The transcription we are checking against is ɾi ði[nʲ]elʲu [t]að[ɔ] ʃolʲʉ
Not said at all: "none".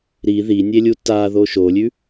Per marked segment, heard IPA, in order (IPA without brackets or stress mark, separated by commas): nʲ, t, o